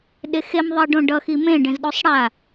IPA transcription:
ɗ e x e m ðˤ i ɖ õ ɖ ʌ x i m ẽ ɖ ẽ z ɗ o sˤ ɽ a

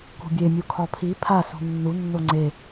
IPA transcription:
k ṳ bʲ e mʲ u kʰ ɒ pʰ i pʰ a s ṳ nː u nː o ŋ͡ǀ e

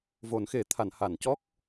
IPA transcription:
v o˨˩˦ n x e˨˩˦ t̪ʰ a˨˩˨ n h a˨˩˨ n c ɔ˦˥ k̚

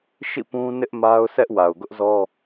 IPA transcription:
ʃ ḭ˦˨ p ũ˦ n ɪ˦ ʔ m a˦ ʊ̯ s ɛ˦ ʔ w a˨ ʊ̯ ɡ ʊ˦ ʔ z ɔ˦

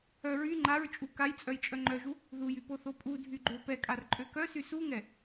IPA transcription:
œ ɹ y ŋ͡ǃ a ɹ t͡ʃʼ u k a j t͡sʼ œ j t͡ʃʼ œ ŋ͡ǃ œ ʒ u | ð u j y p o θ o pʼ u dʱ y ɡ͡ǃ ø p ɛ kʼ a r ǃʼ ø k œ s y s u ŋ ɛ

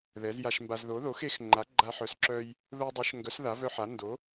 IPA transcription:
ð ɛ˩˥ z j a˧ ʃ m b a˧ z ð o˩˥ ð o˩˥ x e˩˥ x ŋ͡ǃ a˩˥ ɡ͡ǃ a˧ ħ œ˩˥ s ǁ œ˧ j | ð o˧ dˤ œ˩˥ ʃ ŋ ɡ œ˩˥ s ð a˩˥ v œ˧ ħ a˩˥ n d o˩˥

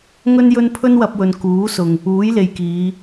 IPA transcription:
ŋ ɵ˥ n j ɵ˥ n pʰ ɵ˥ n w ɐ˧ p̚ w ɵ˨ n k uː˨˥ s ʊ˨ ŋ | uː˨˥ j l e˨ j k iː˨˧

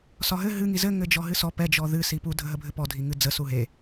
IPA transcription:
s ɒ ɦ ɘ ɦ ɨ ŋ i z ɘ ŋ ɘ d͡ʒ ɔ ɦ ɨ s ɔ p ɛ d͡ʒ ɔ ð ɨ s i p u dʱ ə ɦ ə bʱ ɘ p ɔ dʱ i ŋ ɨ d͡z ə s u ɦ e

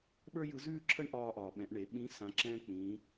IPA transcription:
ɓ ə˞˥ j ɯ˧˥ z ʉː˥ ǁʰ ə˥ ɳ ʔ ɒː˧ ʔ ɒː˩ ɓ ɛ̃˩˧ ʔ ɳ e˩˧ ɓ ĩ˧˥ s ã˩˧ ǁ ɛ̃ː˧ k͡p ĩː˩˧

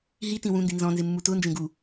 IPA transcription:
ɦ i t ĩ w ũ n d i n z ɔ̃ n z ɪ mː u t ʊ n d͡ʒ ẽ ɡ u

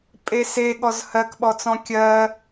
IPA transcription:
pʼ e s e ɠ ɔ z h ɜ k ɓ ɔ t͡s ɔ̃ kʲ ɜ

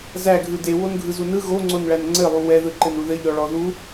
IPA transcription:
z æ ɡʱ ɯ d e w o n ɡʱ ɯ z u n ɯ ɣ o ŋ͡ǀ o n ɭ æ n ŋ͡ǀ ɘ lˠ u w ɛ ð ɯ ǃ ɘ n u ð ɘ ʎ ɔ ɭ ɔ ð u

